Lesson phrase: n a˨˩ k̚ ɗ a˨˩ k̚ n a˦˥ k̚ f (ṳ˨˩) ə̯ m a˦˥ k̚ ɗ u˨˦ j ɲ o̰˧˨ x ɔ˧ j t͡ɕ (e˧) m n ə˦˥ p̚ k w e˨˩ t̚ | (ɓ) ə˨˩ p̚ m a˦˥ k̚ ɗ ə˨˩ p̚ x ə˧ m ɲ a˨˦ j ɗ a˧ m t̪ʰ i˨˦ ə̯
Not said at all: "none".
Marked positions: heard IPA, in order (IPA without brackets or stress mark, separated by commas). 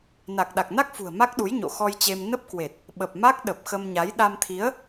ṳ˨˩, e˧, ɓ